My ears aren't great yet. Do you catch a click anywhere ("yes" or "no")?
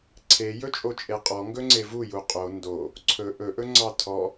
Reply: yes